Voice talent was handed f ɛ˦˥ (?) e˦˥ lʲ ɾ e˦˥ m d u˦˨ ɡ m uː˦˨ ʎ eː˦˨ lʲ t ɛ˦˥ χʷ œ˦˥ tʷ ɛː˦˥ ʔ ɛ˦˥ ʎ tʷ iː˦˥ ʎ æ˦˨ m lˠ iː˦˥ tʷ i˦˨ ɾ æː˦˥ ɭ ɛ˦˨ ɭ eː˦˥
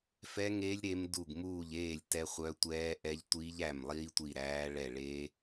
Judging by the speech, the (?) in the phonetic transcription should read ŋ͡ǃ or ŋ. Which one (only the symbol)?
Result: ŋ